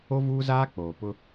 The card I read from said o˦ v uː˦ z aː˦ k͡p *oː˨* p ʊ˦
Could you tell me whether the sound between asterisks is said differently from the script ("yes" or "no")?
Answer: no